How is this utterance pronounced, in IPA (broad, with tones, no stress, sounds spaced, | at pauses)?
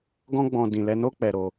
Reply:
ɡ ɔ̃˦ ɡ͡b ɔ̃˧ d ĩ˨ l ɛ˧ n o˦ k͡p ɛ˧ ɾ o˧